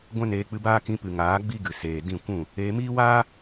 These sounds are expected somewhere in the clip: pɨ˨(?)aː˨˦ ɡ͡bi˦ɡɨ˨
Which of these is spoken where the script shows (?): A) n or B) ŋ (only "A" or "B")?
B